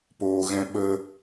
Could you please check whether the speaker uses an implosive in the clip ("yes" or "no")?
yes